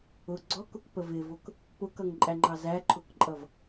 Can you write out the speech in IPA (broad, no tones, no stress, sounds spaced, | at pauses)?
ʊ ɡ͡ǀ ɔ k ʊ k p ə v ɪ v ʊ k | p ʊ k ʌ ŋ ǃʼ æ ŋ͡ǃ ɑ z æ ǃʰ ʊ k ǃʼ ʌ v